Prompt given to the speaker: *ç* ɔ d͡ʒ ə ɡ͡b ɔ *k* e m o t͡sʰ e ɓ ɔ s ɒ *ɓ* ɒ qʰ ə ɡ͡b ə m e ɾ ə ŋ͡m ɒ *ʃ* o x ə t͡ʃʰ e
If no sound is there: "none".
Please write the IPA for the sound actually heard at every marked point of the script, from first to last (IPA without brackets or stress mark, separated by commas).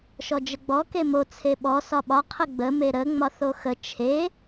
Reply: ʃ, k, ɓ, θ